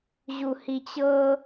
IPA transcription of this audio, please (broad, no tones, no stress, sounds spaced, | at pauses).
ʑ u h i t͡ɕ ɤ